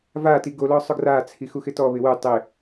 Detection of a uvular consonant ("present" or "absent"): absent